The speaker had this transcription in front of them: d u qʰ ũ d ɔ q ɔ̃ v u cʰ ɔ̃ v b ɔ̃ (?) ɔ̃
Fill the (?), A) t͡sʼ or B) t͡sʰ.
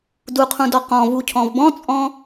A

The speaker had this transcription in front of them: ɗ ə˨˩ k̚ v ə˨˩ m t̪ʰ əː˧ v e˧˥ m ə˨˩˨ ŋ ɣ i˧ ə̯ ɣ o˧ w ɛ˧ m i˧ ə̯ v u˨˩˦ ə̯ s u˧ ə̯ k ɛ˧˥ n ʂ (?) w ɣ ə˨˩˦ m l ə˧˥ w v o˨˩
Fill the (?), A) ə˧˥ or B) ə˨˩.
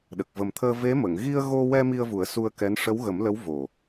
A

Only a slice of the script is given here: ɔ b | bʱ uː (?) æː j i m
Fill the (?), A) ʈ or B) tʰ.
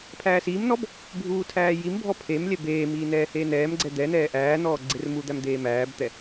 B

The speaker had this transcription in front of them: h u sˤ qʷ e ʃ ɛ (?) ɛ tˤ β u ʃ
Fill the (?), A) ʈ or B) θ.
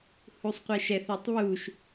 B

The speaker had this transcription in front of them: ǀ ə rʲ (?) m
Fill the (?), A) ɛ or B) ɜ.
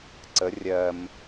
B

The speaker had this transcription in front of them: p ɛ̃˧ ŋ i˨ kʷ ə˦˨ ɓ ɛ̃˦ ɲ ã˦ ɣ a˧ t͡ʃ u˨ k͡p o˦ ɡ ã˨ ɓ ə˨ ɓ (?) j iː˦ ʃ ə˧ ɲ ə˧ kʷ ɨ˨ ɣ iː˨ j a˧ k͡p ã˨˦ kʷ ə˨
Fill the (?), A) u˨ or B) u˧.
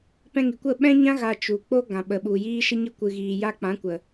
A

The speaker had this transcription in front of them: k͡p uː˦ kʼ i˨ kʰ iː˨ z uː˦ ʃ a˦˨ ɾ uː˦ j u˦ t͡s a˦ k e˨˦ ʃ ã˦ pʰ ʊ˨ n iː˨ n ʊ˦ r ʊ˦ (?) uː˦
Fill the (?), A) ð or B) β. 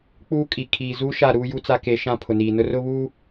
B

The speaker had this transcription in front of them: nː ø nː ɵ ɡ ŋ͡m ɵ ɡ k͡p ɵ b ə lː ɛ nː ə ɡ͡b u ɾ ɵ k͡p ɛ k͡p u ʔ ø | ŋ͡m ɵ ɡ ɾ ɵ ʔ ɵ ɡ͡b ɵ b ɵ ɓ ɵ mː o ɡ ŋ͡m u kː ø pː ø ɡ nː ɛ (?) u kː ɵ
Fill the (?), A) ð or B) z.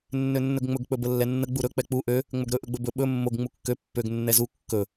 B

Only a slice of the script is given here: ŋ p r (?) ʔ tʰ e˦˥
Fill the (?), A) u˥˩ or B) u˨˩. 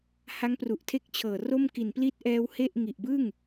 B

